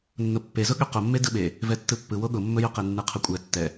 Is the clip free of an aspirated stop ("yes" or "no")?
no